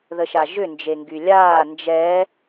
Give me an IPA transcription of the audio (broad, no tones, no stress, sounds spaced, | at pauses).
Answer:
ð ə ʃ a ʒ ʏ n d͡ʒ e ŋ ɡ y lʲ aː n d͡ʒ ɛ